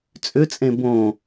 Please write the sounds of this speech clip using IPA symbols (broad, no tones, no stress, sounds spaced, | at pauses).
t͡sʼ ʏ t͡sʼ ẽ b õ